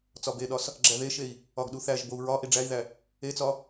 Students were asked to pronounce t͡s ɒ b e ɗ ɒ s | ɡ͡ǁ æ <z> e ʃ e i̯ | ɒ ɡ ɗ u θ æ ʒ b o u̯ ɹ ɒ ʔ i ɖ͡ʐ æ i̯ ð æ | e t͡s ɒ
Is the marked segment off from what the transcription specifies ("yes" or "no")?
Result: yes